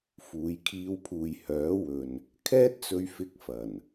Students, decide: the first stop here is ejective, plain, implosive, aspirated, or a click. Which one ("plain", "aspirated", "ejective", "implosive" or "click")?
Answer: aspirated